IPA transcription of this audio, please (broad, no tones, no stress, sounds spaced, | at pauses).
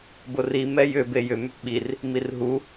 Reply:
b ʊ r i m ɛ j ʏ b e j ʏ m ʏ p ɓ i r | m i r ɦ u